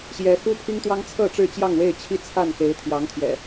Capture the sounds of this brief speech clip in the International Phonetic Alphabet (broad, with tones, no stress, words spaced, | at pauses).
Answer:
ɕjɛ˨˦ xu˦pʰi˦ŋt̪wɑ˦ŋt͡sʰɤ˥˨ ʈ͡ʂɻ̩˥˨t͡ɕjɑ˥˨ŋwe˥˨ɪ̯ t͡ɕʰi˦t͡sʰa˥˨n xe˨˦ɪ̯t̪ʰjɑ˨˦ŋt̪ʰjɛ̰˨˩